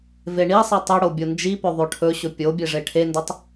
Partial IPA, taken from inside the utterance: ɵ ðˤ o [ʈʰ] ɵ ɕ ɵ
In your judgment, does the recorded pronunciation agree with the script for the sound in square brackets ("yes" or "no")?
yes